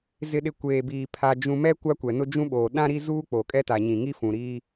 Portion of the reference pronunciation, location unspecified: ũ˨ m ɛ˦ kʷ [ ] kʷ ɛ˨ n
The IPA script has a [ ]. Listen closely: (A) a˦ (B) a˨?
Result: A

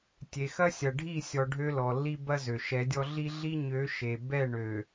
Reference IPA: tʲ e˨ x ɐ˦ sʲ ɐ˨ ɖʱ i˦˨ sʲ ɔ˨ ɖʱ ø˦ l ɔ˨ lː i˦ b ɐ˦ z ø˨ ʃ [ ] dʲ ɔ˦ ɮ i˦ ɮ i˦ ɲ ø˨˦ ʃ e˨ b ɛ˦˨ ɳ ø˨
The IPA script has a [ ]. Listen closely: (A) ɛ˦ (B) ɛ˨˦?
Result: B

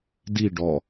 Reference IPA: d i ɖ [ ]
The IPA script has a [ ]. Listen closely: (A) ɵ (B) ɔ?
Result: B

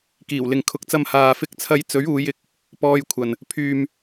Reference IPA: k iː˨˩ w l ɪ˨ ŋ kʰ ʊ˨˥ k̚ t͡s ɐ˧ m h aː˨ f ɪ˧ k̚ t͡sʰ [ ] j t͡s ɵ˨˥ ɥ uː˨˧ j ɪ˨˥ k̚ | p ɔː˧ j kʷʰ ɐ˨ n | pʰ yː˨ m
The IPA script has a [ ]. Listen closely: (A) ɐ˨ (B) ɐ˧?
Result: B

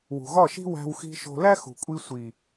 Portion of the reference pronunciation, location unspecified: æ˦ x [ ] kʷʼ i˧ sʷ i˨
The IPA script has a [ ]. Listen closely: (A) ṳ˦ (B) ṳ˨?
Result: B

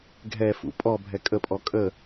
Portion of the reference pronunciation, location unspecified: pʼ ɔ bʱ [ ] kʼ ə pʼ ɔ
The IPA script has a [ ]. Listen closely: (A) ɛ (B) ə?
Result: A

